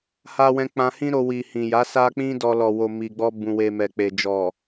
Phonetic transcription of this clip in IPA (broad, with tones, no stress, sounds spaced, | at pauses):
h a˧ w ɛ̃˧ k͡p ã˧ h ĩ˦ ɾ o˧ w i˨ h ĩ˨ j a˨˦ s a˦ k͡p ĩ˦ d ɔ˧ l ɔ˨ w o˨ m i˨ ɡ͡b ɔ˧ b ũ˨ w e˨ m ɛ˨ k͡p e˨ d͡ʒ ɔ˨